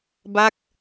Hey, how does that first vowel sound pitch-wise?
falling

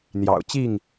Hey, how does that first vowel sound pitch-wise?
low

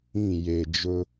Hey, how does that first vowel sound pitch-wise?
falling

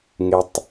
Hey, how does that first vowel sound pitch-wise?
low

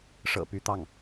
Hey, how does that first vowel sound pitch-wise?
low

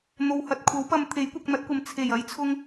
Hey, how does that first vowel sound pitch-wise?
low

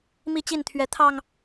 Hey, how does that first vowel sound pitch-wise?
falling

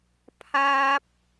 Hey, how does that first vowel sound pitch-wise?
high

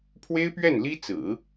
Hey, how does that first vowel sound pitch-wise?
high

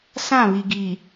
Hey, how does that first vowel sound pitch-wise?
falling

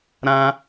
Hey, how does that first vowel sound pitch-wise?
high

